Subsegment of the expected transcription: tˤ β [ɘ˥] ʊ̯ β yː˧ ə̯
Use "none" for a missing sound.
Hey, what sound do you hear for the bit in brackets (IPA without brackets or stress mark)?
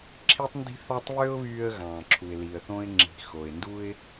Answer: ø˥